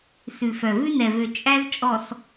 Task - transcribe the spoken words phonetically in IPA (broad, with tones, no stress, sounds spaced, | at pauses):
s ʉ˨ f œ˨ v ʉ˦ n ɛ˨ v ø˨ t͡ʃʼ æ˦ z t͡ʃʼ ɔ˨ s